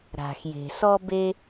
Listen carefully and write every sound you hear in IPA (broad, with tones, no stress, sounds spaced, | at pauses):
ɾ a̤˩ x j e̤˩ s ɔ˥ b e˥